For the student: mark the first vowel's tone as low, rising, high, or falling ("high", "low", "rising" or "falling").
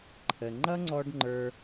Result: low